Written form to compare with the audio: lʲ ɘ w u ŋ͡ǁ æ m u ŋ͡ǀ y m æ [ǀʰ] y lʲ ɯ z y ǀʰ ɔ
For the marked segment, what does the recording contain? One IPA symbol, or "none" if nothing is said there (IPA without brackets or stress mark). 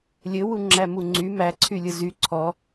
ǀʰ